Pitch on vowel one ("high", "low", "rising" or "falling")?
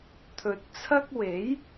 low